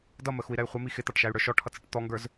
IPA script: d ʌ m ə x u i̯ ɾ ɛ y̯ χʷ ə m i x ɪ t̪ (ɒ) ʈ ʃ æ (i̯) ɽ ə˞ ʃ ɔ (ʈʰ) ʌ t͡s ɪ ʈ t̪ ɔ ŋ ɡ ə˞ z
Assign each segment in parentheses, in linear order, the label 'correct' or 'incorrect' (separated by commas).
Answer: incorrect, incorrect, correct